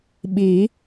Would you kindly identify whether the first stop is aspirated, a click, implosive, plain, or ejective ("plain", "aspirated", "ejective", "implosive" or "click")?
implosive